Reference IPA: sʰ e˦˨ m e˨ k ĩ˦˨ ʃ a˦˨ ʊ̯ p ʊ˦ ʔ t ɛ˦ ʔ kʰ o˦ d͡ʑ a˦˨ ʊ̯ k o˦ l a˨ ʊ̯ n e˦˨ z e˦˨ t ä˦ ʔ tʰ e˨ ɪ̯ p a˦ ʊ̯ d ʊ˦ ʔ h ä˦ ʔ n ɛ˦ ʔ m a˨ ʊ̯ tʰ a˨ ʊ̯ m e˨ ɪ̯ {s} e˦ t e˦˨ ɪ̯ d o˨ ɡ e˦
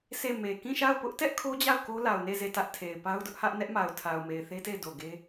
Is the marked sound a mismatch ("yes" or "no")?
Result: yes